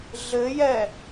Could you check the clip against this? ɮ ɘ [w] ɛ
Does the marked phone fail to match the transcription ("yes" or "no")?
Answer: yes